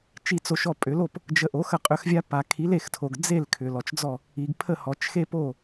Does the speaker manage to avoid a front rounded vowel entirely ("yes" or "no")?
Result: no